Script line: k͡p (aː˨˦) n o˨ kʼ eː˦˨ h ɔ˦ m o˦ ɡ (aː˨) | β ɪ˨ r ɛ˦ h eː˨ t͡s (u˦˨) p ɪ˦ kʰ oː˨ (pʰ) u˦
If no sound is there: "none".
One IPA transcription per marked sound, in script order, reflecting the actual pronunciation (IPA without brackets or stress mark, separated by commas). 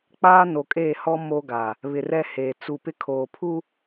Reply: aː˦, a˨, u˦˨, pʰ